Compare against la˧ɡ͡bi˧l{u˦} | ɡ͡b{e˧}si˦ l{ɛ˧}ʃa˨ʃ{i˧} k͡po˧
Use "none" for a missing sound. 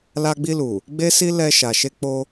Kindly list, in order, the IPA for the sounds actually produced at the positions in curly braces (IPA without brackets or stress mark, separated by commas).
u˨, e˦, ɛ˧, e˧